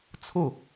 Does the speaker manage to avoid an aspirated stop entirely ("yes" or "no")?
no